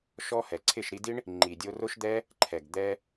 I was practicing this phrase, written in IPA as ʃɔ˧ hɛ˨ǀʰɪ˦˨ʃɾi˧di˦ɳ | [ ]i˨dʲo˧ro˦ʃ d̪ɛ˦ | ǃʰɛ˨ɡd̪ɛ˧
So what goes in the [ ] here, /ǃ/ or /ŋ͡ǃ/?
ŋ͡ǃ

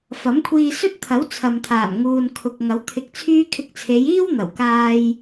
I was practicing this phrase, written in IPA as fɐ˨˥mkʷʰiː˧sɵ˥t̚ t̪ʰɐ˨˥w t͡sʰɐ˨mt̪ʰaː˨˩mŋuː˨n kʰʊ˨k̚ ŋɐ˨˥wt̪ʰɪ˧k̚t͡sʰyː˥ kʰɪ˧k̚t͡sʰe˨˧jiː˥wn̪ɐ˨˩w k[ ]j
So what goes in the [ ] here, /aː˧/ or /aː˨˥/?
aː˧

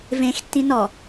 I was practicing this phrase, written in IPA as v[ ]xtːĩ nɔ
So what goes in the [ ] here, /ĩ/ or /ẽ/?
ẽ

